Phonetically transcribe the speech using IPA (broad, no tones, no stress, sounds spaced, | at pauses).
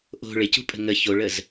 ʔ o̤ ɭ ɪ c ṳ pʼ ə̤ ŋ ə ç o ɭ ə z